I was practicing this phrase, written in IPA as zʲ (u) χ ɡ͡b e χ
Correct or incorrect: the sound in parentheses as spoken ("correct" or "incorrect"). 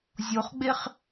incorrect